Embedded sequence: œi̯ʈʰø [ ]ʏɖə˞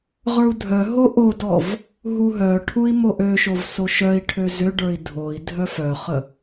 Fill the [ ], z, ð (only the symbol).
z